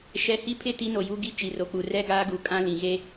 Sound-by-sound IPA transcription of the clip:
ʃɛ˨hi˦pʰɪ˦˨ ti˦no˨ju˦ɡi˦ t͡ʃi˨ro˨k͡pu˨ rɛ˦ɡaː˦ɡu˨kʼã˦ lĩ˨ ɣe˦

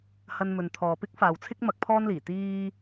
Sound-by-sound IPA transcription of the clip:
hɐ˥nmɵ˧n t̪ʰɔː˨pɪ˥k̚faː˨wt͡sʰɪ˥k̚ mɐ˧k̚pʰɔː˥nliː˨˩ t̪iː˥

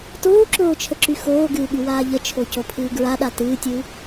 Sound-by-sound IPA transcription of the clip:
toːǁoːt͡ʃʰəǁy xoːɡɨːɠywaː ʎət͡ʃʰocopʰɨː ɡɹaɗa tɨːtʲɨː

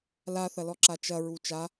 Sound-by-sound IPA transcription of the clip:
laθɐlɔǁa t͡ʃɐɹu t͡ʃa

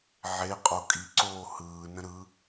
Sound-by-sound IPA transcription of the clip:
ʕeqʼo kʼiǀoː hɯː nə̃ɾɯ

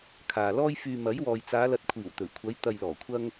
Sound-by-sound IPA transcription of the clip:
kʰaː˨lɔː˥j fyː˧ mɐ˨˥jwɔː˨jt͡saː˨˧ lɐ˨t̚kʷʰiː˨˩w t̪ɵ˨˩ɥkʷʰɐ˨˧j t̪ɐ˨jlɔː˨˩kʷʰɐ˧ŋ

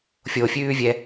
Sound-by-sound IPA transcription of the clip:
fʲofʲʉːvʲɛ

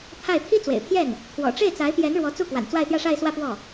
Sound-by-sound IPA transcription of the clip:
t̪ʰa˥˩ɪ̯ t̪ʰi˥t͡swḛ˨˩ɪ̯pʰjɛ˥˩n | t̪ʰwɔ̰˨˩ʈ͡ʂe˥˩ɪ̯t͡sa˧˥ɪ̯pjɛ˧˥n ɻwɔ˧˥t͡su˥˩kwa̰˨˩n t͡swa˥˧ɪ̯t̪jä˥˧ʂa˥˧ɪ̯swä˥˧ pwɔ˥˩

